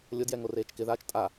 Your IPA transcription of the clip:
lʲʊdjɛ ŋoreːt͡ʃkɪðaːt͡ʃ tʼa

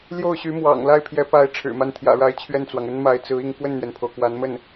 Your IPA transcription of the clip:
ljo˥˩ʊ̯ɕy˧˥mwɑ̰˨˩ŋ la˥˩ɪ̯pʰjɛ˧˥ pa˧˥ɪ̯ ʈ͡ʂʰɻ̩˨˩ma˥˩n t̪ʰjä̰˨˩ɻa˧˥ɪ̯ t͡ɕʰɥɛ˥˩nt͡swɑ˩ŋə˥nma˧˥ɪ̯ t͡sɹ̩˧˥i˥˧ŋ kwə˥˩nn̪ɥɛ˩npʰo˩ʊ̯ kwa˧˥nmə˥˩n

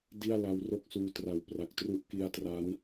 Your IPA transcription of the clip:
di˥˩a̯ la˦˥wro˥˩k̚suː˦˥ tra˨˩wpra˨˩k̚ tru˦˥ʔki˧a̯tra˦˥n

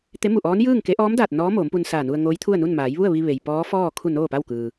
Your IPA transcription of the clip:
t̪e˧˥mu˧˩ʔɔː˧˥n jɯː˥˨ŋ ke˧˥ ʔɔː˧˥mdaː˧˩t̚ nɔː˧˥ moː˩˧mpu˧nsaː˧˩nu˧ə̯ ŋoː˧˥jt̪ʰu˥˨ə̯nu˥˨n maː˩˧jʋu˥˨ə̯ʋi˧ ʋe˩j pɔː˧˥fɔː˥˨ kʰu˥˨noː˥˨pa˥˨wkɯː˩

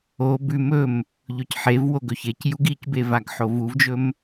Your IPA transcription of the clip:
o bʉm ɵm | ʎɵcħevwo ɡɵçecjuɡ icbe vaɡħovuvd͡ʒɵm

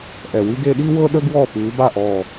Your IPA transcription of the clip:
ʔɛ˨˩wi˥ɡe˥ ɗi˥wɤ˥ɗə˥ ɡwɔ˥˨pʉ˨˦ba˥˨ ʔɔ˨˩

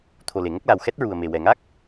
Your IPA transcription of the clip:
t̪ʰo˨˩le˨˩˨ŋə˦˥k̚la˨˩w xɛ˦˥t̚ɹu˨˩ə̯me˨˩wɛ˨˩ ŋa˦˥k̚

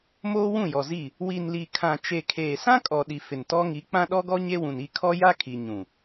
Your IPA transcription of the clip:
moː˦wũ˦˨jɔ˨zi˦˨ | wi˨nli˨kʰã˨ t͡ʃe˨ kʰeː˨sã˦kʼɔ˨ɗi˨ fɪ˨ntɔ˦ŋi˨˦ k͡pã˦ɗɔ˦ɡɔ˦ ɲe˦wũ˨n i˦˨kʰɔ˦ ja˦kʰi˨ ɲũ˨

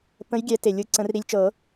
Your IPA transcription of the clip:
pə̃˨˦jɡʲɛ˨˩˦ te˨˩lʲɯ˨˦ ǀə̃˨˩˦rɾi˨˦lʲt͡ʃɤ˨˩˦

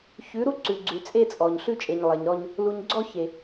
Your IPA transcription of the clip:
çʉ˨˦ ɾu˦ǀʉ˨ ɡ͡ǀʉ˨t͡sʼe˦t͡sʼɔ˨ɲ ɬʉ˦t͡ʃʼe˨ɲlˠe˨ɲɾɔ˦ɲ | lu˨ɲɡ͡ǀɔ˦çe˨

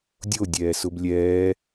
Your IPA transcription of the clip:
dʲo dʲɛːsʊblʲɛː

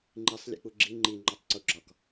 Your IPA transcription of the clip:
ŋ͡ǃisˤ lʲḛk͡puɡ͡ǁi ŋ͡ǃi ŋ͡ǃɒtˤǀuɡ͡ǁɒk

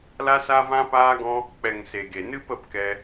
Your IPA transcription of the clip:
la˦sa˦vã˦ paː˦ɡɔ̃˦ | k͡pɛ˨ŋ se˨ɡe˨ nɨ˦pə˦˨pkɛ˧

